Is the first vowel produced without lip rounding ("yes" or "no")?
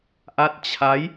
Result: yes